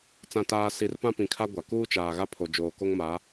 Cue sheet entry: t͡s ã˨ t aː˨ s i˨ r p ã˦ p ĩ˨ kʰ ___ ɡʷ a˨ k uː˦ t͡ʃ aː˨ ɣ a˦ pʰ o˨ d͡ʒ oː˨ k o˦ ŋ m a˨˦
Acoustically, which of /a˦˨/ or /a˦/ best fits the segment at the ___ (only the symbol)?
a˦